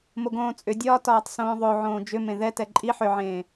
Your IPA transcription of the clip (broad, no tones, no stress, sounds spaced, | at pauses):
m o ɡ õː t͡sʼ ʏ dʲ ɒː t ɒː tˤ s õː ðˤ o ʕ õː d͡ʒ ʏ m ẽ ð ɛ t ɛ ǃʼ i ħ ʏ ʕ ẽː